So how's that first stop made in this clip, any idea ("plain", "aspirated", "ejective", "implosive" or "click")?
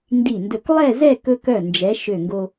plain